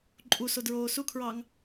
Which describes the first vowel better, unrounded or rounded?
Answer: rounded